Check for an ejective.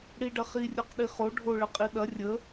present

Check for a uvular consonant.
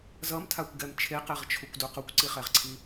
present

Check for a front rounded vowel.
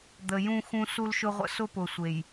absent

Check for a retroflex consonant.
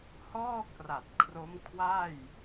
absent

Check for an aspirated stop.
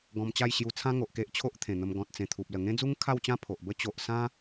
present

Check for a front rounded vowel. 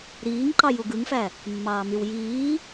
present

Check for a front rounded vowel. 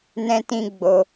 absent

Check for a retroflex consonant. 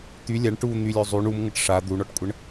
present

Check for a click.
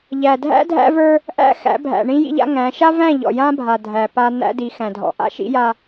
absent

